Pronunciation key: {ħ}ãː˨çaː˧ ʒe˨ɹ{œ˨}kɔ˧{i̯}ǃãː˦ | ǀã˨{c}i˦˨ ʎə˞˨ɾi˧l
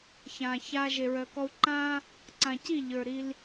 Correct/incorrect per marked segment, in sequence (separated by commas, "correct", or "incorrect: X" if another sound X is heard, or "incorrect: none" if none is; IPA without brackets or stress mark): incorrect: ç, correct, incorrect: u̯, correct